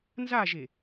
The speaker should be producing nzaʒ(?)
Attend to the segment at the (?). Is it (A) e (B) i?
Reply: A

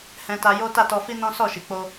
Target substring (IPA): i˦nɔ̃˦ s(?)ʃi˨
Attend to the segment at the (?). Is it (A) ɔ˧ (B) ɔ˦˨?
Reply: B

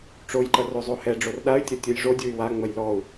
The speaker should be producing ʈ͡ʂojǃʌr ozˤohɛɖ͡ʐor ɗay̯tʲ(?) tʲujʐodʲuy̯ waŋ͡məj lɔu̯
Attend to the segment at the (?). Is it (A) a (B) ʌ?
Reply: B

